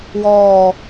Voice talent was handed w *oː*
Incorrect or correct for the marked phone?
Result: incorrect: ɔː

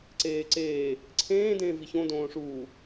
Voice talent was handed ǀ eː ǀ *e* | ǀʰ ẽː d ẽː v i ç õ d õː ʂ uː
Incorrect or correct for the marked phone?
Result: incorrect: eː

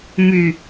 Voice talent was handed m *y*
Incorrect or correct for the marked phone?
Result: correct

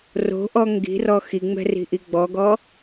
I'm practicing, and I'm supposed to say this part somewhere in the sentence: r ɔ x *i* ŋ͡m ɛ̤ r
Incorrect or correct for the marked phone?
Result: correct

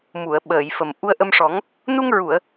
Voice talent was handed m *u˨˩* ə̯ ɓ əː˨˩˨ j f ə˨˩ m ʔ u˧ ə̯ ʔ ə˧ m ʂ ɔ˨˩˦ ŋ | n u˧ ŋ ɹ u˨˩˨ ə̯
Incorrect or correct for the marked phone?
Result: incorrect: u˨˩˨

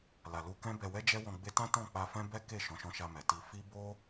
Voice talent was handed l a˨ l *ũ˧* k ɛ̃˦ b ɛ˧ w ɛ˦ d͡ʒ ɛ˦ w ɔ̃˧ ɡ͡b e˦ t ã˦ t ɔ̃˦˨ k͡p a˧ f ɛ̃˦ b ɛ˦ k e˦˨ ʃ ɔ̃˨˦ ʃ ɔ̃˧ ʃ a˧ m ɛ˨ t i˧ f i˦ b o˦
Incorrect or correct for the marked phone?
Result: incorrect: u˧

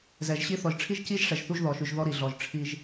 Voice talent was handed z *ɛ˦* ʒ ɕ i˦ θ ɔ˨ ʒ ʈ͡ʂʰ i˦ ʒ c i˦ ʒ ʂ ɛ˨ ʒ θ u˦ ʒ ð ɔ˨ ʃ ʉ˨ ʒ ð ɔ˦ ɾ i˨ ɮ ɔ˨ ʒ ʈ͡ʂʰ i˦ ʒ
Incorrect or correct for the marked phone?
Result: incorrect: ɛ˨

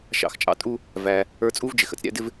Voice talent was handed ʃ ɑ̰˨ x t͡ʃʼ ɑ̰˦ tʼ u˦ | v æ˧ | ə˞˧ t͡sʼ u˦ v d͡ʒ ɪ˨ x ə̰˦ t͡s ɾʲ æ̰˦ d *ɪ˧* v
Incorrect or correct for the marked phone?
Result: incorrect: ɪ˦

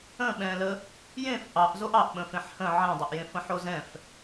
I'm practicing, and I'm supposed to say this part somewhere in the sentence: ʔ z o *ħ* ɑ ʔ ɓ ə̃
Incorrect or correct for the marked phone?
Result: incorrect: ʔ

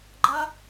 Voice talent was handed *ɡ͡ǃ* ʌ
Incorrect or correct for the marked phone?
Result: correct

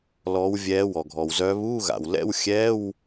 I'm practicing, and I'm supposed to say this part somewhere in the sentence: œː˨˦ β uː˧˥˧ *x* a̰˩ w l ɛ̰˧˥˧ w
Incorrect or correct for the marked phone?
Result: incorrect: ɣ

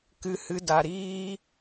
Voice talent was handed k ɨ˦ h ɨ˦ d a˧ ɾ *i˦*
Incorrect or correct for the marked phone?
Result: incorrect: iː˦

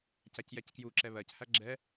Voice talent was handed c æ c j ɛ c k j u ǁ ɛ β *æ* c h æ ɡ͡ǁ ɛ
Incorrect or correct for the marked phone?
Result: incorrect: ɜ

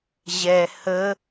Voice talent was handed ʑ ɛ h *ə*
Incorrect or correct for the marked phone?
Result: correct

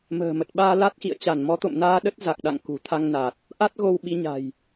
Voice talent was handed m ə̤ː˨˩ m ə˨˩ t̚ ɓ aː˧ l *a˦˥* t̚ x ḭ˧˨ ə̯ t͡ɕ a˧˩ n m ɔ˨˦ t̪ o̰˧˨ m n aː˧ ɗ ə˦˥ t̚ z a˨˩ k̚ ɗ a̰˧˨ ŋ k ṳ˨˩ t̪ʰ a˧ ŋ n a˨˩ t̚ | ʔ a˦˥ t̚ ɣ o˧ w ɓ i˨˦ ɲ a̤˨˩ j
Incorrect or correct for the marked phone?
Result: correct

